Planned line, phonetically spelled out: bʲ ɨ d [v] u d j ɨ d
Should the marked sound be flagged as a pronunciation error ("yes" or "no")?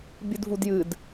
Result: no